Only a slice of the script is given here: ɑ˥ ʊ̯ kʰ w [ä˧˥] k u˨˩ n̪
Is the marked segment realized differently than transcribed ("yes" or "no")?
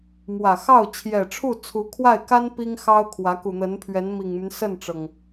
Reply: no